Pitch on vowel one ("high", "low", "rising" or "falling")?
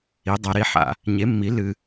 rising